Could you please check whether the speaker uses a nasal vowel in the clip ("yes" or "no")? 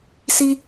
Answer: no